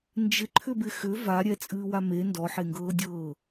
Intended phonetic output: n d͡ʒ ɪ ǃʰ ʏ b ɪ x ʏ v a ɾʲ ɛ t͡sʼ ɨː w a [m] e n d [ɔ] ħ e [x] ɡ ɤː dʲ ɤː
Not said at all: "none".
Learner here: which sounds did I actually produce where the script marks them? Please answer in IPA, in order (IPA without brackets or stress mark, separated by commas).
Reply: m, ɔ, ŋ